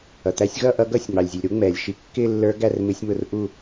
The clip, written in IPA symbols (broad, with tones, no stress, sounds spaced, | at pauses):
ʌ˩ t̪ æ˨˦ sʲ ɣ ʌ˦˨ ʔ ʌ˨˦ ɡ ʌ˦˨ sʲ ŋ͡m ɑ˩ lʲ zʲ u˩ lʲ ɾ u˨˦ ŋ͡m ɛː˩ lʲ ʃ i˨˦ kː ɪː˦˨ lː ə˞˨˦ ɡ æ˦˨ r m ɪ˨˦ sʲ m ʊ˨˦ r ʔ u˦˨